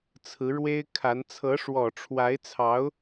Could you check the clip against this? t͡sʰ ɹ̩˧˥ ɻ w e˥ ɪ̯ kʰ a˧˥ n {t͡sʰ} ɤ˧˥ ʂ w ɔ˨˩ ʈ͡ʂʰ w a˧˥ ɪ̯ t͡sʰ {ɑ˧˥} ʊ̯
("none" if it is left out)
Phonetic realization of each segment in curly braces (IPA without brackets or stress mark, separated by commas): t͡sʰ, ɑ˧˥